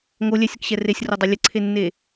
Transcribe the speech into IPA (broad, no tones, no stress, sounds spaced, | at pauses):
ŋ o lʲ ɛ sʲ ə k ɕ ɛ r e sʲ r o dˤ e lʲ ə ǀʰ e nː e